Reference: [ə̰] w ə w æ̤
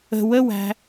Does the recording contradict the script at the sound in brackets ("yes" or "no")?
yes